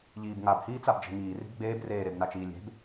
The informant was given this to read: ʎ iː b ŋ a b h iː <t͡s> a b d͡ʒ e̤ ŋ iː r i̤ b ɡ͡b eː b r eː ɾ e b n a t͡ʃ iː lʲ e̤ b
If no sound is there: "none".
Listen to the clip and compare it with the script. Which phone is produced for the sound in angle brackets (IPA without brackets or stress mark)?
t͡s